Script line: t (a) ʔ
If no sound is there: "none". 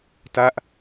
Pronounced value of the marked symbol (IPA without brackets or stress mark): a